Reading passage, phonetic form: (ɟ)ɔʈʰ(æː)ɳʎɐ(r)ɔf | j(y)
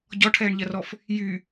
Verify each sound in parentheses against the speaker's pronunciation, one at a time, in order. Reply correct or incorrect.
correct, incorrect, correct, correct

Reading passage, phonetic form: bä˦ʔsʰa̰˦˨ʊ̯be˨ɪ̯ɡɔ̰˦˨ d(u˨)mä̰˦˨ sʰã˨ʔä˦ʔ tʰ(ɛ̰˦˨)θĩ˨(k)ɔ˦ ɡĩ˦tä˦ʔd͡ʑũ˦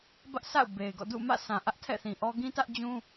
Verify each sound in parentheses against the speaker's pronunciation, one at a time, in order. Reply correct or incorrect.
incorrect, correct, incorrect

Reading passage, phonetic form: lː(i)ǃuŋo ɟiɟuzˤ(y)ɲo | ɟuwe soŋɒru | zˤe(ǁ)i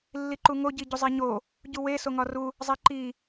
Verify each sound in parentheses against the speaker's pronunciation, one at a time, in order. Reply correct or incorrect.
correct, incorrect, incorrect

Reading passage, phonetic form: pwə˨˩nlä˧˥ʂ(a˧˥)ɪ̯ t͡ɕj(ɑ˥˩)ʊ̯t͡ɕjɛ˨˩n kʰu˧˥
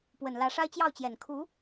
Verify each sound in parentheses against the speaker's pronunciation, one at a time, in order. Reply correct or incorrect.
incorrect, correct

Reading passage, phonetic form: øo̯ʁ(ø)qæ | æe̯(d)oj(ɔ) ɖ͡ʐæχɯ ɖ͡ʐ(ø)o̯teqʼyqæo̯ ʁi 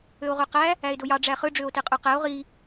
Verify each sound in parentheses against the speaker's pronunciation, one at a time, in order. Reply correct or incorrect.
correct, correct, incorrect, correct

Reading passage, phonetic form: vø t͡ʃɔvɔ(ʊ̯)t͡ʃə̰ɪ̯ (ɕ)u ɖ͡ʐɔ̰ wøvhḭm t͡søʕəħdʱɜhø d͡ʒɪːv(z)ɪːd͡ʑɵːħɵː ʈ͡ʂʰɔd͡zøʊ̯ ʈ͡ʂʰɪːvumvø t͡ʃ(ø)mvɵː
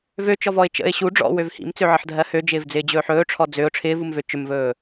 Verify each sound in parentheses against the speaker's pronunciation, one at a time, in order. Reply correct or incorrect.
incorrect, correct, incorrect, incorrect

